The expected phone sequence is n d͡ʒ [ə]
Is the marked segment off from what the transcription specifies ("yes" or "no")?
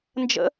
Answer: yes